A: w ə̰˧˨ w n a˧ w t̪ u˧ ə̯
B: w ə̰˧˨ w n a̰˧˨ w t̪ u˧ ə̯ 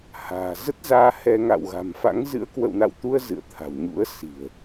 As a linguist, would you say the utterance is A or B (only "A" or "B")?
B